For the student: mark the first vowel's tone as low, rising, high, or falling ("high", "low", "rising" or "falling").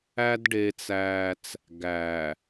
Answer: high